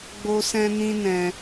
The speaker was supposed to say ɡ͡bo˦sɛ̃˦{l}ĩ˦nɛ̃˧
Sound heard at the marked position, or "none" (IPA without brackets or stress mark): n